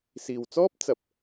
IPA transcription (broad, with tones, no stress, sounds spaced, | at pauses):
s iː˨ w t͡s ɔː˥ p̚ t͡s ɐ˧ p̚